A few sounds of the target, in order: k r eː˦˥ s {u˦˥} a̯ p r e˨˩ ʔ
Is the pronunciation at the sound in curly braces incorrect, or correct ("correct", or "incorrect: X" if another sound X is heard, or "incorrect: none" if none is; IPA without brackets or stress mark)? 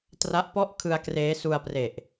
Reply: incorrect: u˧